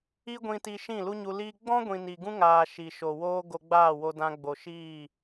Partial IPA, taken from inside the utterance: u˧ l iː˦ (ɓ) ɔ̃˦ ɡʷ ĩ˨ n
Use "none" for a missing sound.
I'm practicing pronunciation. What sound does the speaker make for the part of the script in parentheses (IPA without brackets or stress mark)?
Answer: ɡ͡b